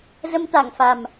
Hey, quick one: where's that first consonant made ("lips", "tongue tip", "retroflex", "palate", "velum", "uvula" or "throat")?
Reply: tongue tip